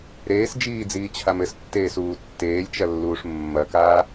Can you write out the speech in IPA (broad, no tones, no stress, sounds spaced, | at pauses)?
ɾ eː s d͡ʒ iː d͡z iː t͡ɕʰ a m ɘ s tː eː s uː tː eː lʲ t͡ʃ ɐ lː uː ʂ mː ɐ k aː